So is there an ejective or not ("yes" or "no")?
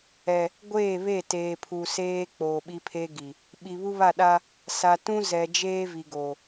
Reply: no